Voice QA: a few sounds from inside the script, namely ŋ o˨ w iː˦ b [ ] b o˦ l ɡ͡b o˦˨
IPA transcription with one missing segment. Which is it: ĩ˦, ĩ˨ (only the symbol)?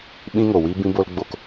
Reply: ĩ˦